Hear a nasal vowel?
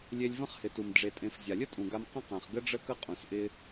yes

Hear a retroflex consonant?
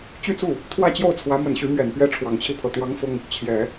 yes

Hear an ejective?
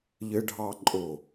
yes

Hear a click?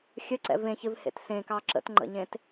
yes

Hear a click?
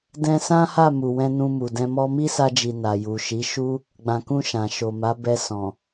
no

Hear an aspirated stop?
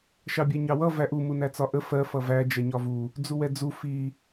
no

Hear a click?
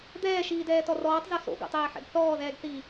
no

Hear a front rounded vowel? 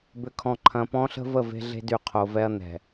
yes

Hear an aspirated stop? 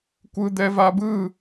no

